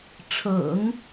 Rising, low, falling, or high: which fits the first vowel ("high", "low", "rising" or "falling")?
low